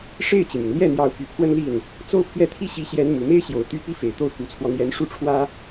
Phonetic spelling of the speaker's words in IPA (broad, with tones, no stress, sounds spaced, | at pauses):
ʂ e˥˩ ɪ̯ t͡ɕ i˩ m y˩ n l j ɛ˥˩ n̪ j ɑ˧˥ ʊ̯ p y˨˩ pʰ w ə˥˧ n l i˥˩ n | t͡s o˥˧ ʊ̯ pʰ ɥ ɛ˥˩ t̪ʰ i˥ ɕ i˧˥ ɕ j ɛ˧˥ n m u˨˩ m e˥ ɪ̯ ɕ j o˨˩ ʊ̯ t̪ y˥˩ p i˥ f e˨˩ ɪ̯ t̪ o˥˩ ʊ̯ k u˧˥ t͡sʰ w ɔ˧ n̪ j ɛ˧˥ n ʂ u˥˩ ʈ͡ʂʰ w ä˥